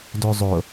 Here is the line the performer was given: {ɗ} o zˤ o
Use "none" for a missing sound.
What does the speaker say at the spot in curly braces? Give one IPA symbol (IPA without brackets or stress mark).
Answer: d